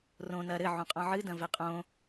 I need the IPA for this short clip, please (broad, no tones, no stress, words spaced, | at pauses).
rõ nɐ ɾɘ ʕũqʼɔ̃ʕɨ dɐ̃vɛqʼõ